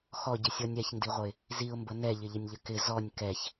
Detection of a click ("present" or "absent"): absent